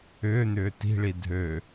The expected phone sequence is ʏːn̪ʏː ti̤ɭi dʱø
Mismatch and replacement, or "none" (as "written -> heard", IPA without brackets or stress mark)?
none